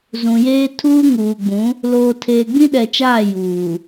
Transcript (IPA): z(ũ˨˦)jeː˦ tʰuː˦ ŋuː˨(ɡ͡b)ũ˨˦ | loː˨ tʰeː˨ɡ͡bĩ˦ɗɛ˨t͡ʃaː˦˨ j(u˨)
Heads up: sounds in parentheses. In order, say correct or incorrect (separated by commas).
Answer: incorrect, correct, incorrect